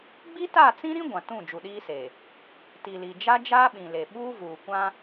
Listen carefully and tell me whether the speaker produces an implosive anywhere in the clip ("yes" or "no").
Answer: yes